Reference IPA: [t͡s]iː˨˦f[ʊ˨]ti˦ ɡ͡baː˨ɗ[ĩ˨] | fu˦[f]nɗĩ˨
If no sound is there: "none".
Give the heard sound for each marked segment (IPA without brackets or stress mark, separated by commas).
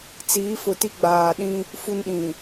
t͡s, ʊ˨, ĩ˦, none